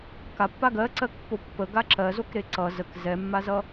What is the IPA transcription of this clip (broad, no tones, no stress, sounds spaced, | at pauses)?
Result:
k a pː a ɡ ɜ ǀ ɜ k pː o pː ə ɡ a ǁ ɜ z o k ɾ e ǀ ʌ z ə k z ɛ mː a z ʌ